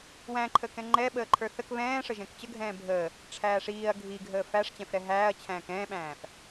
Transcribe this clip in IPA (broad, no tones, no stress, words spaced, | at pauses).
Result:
wæ̃ǃʰə kɛ̃ŋ͡ǃɛ ɓəːǃʰə˞θək βɛ̃ːʂəʒɛ̃k t͡ɕəɡʱɛ̃ː bʱəː | ʈ͡ʂʰæːʂiːɐ̯ ɡʱiɡʱəː fæʂt͡ɕɛ̃fɾɛ ɦæːɐ̯t͡ɕʰæ̃ːk ɛ̃ːɓæ̃ːf